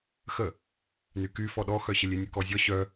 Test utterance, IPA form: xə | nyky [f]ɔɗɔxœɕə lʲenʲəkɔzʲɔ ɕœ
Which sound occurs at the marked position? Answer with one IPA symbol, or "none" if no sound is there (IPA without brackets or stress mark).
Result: f